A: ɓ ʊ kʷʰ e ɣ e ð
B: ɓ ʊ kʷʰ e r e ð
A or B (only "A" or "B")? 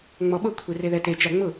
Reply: B